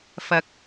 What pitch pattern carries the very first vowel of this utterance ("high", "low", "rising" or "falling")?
low